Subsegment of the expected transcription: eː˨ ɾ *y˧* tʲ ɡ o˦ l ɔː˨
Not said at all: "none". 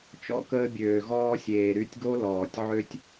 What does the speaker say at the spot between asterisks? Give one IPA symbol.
y˧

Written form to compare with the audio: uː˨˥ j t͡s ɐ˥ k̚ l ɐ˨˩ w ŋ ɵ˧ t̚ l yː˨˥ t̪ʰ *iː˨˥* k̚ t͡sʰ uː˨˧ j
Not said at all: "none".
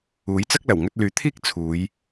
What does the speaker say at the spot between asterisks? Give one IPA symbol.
iː˥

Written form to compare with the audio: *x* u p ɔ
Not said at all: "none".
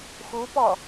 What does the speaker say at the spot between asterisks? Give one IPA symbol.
x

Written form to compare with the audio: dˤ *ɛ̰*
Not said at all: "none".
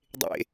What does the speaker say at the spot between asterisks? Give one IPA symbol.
ḛ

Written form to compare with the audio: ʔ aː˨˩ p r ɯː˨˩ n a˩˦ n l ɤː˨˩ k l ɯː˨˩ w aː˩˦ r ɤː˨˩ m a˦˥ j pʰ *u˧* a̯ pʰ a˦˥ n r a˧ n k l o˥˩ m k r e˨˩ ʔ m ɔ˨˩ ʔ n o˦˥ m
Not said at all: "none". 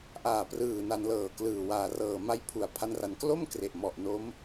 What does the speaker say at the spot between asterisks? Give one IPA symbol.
u˨˩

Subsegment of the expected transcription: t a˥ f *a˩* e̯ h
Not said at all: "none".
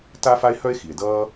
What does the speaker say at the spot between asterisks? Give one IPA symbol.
a˥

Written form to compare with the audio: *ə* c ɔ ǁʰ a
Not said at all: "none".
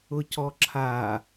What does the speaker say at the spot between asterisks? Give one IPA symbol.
ʊ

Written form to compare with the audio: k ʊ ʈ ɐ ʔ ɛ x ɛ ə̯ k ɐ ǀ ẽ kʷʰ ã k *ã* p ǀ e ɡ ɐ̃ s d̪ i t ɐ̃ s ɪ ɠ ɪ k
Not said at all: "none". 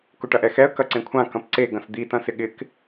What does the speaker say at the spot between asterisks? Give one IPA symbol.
ɐ̃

